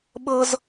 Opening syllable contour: high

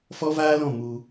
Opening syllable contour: high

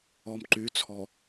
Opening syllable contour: low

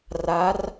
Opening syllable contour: rising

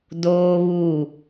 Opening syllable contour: high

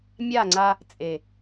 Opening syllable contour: falling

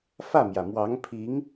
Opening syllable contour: falling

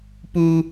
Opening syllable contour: high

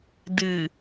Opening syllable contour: low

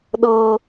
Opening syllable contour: high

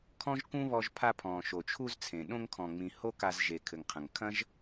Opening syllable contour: high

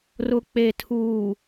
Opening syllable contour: low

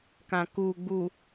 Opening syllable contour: low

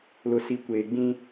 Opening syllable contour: low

